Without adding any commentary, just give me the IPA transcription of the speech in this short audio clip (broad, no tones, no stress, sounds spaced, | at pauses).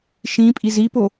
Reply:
ʃ ĩ pʼ i z i p o